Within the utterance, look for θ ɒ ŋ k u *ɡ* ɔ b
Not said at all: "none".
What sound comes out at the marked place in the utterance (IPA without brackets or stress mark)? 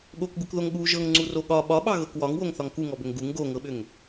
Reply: ŋ